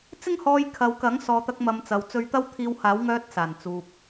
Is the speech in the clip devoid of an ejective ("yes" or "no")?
yes